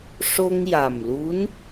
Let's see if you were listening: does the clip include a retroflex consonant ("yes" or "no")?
yes